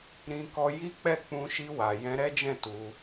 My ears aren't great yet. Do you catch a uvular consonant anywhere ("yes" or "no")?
no